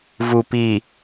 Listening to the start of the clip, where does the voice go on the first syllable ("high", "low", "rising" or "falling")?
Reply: low